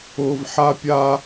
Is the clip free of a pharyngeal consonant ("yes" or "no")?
no